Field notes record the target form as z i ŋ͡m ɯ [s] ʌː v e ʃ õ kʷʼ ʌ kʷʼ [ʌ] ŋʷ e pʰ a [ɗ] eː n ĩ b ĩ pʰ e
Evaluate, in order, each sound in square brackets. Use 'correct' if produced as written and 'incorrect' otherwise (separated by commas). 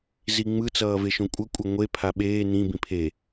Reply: incorrect, correct, incorrect